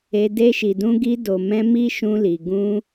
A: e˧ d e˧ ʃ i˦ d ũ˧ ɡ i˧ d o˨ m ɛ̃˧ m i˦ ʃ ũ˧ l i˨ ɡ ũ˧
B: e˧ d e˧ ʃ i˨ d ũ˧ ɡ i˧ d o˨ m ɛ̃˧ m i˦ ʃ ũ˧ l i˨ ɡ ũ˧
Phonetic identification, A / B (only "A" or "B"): B